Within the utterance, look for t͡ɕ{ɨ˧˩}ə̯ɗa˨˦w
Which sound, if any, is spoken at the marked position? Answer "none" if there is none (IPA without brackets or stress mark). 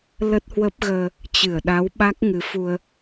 ɨ˧˩